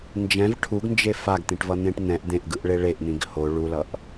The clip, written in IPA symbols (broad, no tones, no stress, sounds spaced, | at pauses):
n d͡ʒ ɛ̃ v ʈʰ u ɡ n d͡ʒ e f a ɡ t̪ ĩ ʈ v ʌ n̪ ẽ ʈ n̪ ɛ̃ ʔ d̪ ẽ ʔ ɡ ɯ ʔ ɭ e ɭ e ʔ n̪ ĩ ɡ h o ɭ u l ʌ ʔ